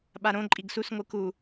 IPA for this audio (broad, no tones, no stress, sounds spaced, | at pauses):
ɓ a ɾ õ ǃʼ i ɡ s u s ŋʷ ɯ k u